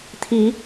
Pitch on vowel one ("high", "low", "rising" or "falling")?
rising